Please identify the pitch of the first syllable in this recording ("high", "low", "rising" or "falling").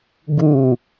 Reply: falling